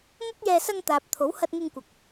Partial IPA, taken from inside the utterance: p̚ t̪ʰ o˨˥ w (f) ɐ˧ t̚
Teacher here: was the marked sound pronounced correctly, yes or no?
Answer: no